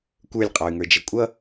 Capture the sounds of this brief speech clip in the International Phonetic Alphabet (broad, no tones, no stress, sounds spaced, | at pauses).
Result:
kʷ ə˞ lʲ qʼ ɑ y̯ ŋ ə˞ d͡ʒ ʌ kʷʼ ʌ